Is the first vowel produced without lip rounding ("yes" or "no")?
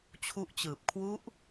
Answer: no